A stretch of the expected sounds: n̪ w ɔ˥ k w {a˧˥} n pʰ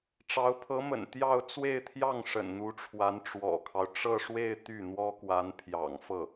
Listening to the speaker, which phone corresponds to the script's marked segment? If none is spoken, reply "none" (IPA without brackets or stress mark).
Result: a˧˥